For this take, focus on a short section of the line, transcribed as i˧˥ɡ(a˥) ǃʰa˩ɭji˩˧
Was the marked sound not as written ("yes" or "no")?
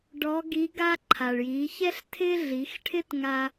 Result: no